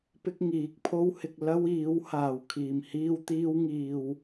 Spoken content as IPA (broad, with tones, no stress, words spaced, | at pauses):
pɪ˥k̚ŋiː˨˥k̚pʰo˥whɪ˧k̚ lɐ˥wiː˨˥w haː˨˩wkʰiː˨˩mhiː˧w t̪iː˧wŋiː˨w